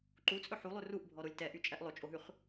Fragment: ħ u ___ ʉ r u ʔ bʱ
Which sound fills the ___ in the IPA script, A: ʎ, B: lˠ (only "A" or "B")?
B